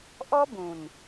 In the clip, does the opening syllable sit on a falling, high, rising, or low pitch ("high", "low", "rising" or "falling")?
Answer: high